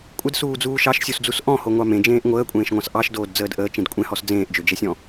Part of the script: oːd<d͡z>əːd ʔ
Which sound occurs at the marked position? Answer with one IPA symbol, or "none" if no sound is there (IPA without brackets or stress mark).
d͡z